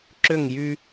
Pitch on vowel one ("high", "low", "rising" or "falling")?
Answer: falling